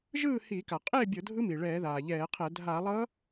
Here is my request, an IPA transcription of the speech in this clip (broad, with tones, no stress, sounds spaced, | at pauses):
ʒ ɯː˥˨ h iː˧˩˧ k a˩ qʼ eː˥˨ bʲ o˧˩˧ dʱ ɯ˧˥ m i˩ ɭ ɛː˧˩˧ ð aː˩ ʎ ɛː˧˩˧ qʰ ɛ˧˩˧ dʱ a˧˩˧ lˠ ʌ˧˥